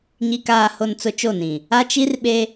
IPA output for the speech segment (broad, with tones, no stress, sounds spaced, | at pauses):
ɲ i˨ k aː˨ h o˨ n t͡s ʊ˦ t͡ʃ o˦˨ n ĩ˨ | a˦ t͡ʃ i˦ r ɓ e˦